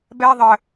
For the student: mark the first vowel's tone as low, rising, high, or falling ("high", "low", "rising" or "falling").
high